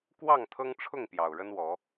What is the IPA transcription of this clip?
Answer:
kwɑ˥˨ŋ t̪ʰɤ˦ŋʈ͡ʂʰʊ˥˨ŋ pjɑ˨˩ʊ̯ɻə˦nwɔ˨˦

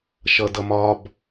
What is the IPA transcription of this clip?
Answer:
ʃʌdʌmɒb

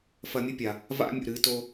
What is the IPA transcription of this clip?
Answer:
fɐ˧mʲɨ˦pʲa˨ | va̰˦mʲṵ˨ ɾɨ˨˦to˦

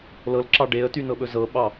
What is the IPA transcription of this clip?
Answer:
lɤl ǁɑɖeə̯ty nɤɓɵzɤɓɑ

